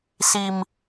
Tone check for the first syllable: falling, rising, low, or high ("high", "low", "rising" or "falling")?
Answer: high